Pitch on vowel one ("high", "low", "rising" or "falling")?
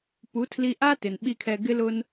rising